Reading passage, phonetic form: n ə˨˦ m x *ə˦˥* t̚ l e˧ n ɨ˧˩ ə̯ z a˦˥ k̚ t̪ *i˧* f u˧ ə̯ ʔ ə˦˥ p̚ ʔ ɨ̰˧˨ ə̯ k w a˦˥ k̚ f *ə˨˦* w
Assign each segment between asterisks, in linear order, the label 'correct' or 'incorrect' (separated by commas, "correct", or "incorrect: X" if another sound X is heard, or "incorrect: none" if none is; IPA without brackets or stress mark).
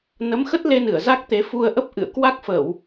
correct, incorrect: e˧, incorrect: ə˧˩˨